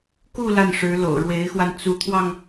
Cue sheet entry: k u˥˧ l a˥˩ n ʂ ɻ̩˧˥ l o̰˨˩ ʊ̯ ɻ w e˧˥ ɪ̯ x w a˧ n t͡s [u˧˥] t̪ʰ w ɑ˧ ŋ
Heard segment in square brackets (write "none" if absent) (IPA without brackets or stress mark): u˧˥